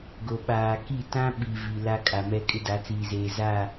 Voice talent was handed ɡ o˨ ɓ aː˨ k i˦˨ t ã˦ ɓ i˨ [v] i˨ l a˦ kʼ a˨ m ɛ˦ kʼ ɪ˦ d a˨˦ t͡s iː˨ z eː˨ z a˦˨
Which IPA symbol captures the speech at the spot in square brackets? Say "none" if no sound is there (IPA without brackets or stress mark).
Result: v